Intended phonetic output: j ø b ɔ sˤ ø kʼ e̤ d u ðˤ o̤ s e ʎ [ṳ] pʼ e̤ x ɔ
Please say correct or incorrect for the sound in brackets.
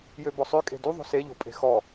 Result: incorrect: o̤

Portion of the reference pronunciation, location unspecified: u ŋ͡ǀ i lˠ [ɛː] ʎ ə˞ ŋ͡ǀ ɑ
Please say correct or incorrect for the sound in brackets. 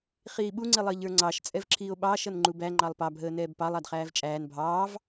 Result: incorrect: əː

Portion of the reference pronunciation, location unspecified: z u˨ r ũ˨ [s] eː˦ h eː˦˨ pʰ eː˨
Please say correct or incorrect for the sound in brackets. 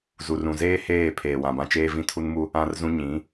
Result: incorrect: z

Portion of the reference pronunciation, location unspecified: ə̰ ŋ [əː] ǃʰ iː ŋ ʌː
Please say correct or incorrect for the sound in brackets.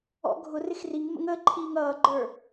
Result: correct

